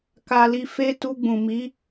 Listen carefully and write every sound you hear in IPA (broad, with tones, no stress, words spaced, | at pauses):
ka˧li˧ fe˦ tu˧ɡ͡bũ˨mi˨˦